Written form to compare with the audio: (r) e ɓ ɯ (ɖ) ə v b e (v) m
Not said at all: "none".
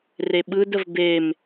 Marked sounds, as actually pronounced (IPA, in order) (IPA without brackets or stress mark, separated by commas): r, d, none